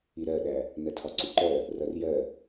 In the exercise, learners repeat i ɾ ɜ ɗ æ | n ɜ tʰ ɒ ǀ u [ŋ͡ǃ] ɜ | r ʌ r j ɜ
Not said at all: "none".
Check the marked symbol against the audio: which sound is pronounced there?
ǃ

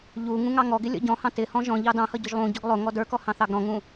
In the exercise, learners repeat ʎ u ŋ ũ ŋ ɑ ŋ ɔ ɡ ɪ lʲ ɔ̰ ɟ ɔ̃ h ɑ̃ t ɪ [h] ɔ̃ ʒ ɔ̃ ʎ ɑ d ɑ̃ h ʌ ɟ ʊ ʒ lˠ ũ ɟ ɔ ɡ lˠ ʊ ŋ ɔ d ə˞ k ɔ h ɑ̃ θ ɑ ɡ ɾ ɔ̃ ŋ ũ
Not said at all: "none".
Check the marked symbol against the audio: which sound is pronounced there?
h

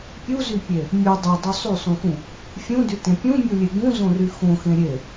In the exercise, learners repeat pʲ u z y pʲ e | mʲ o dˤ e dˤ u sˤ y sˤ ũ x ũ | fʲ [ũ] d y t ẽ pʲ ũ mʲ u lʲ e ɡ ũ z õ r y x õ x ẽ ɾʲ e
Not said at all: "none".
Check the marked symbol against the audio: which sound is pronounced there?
ũ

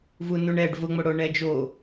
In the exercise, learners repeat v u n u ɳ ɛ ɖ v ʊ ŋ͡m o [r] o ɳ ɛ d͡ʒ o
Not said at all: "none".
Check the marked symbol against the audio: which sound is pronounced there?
ɽ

